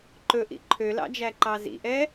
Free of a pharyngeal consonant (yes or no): yes